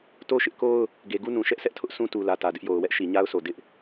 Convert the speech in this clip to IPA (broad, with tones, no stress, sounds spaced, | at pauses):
t o˦ ʃ ɪ˦ ʔ k o˦ ʊ̯ | ɡ e˨ ɡ u˦ n ũ˨ ʃ ɛ˦ ʔ s ɛ˦ ʔ tʰ ʊ˦ ʔ sʰ ũ˦ t u˨ l ä˨ t ä˨ d ɪ˦ ʔ j o˨ ʊ̯ w ɛ˦ ʔ ʃ i˨ ɲ a˦ ʊ̯ s o˨ d ɪ˦ ʔ